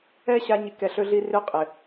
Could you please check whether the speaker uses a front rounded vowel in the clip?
yes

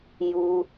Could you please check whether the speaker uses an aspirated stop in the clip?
no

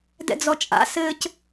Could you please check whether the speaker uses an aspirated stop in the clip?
no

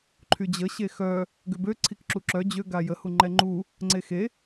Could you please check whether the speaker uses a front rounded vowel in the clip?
yes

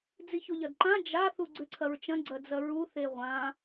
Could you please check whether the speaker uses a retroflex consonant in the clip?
no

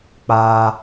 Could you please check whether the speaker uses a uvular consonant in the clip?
no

